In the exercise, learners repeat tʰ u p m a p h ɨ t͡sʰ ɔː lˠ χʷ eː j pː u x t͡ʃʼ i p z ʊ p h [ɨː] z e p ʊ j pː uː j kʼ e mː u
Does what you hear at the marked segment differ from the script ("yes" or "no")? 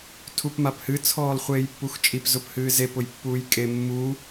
no